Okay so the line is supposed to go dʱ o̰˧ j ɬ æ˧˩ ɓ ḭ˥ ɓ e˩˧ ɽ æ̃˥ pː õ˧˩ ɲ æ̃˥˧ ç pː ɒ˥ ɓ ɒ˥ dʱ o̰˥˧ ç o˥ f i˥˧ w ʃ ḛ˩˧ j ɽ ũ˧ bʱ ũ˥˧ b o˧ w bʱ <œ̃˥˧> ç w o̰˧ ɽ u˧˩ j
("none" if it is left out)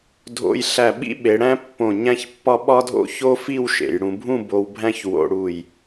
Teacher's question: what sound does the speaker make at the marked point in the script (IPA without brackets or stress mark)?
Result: æ̃˥˧